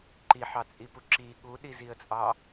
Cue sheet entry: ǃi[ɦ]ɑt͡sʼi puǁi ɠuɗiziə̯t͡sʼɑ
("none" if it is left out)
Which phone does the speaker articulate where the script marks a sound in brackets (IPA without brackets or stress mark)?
ħ